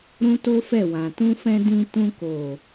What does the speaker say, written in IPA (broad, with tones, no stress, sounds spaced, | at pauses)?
ɾ ũ˦ t o˦ f ɛ˦˨ w ã˨ t ũ˧ f ɛ̃˧ d ĩ˧ t ũ˧ k o˨